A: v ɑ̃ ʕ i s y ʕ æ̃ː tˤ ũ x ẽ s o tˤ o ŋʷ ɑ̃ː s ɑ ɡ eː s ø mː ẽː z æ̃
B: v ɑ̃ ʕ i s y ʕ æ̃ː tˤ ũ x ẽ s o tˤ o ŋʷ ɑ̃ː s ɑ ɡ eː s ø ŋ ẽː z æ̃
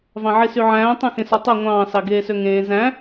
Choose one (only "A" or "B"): B